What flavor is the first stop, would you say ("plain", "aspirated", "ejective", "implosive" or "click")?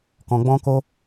plain